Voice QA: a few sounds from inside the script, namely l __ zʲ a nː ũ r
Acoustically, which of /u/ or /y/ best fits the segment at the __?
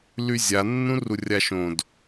y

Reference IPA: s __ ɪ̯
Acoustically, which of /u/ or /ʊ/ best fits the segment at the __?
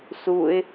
u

